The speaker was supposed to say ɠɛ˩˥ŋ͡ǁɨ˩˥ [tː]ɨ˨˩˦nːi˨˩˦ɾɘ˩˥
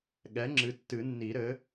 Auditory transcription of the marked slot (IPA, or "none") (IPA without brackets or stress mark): tː